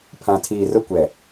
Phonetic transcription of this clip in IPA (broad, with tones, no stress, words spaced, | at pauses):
pʰã˨tʰiː˨ rʊ˦kʷɛ˨